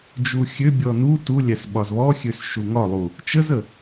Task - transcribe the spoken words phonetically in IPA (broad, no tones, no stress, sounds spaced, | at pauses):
d͡ʒ u xʲ ø bʲ ɔ n u t u lʲ æ s ɓ ɒ z β ɔ xʲ ø s ʃ u ŋ ɒ lˠ u | t͡ʃ ə z ə